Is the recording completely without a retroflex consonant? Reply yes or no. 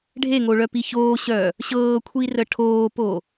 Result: no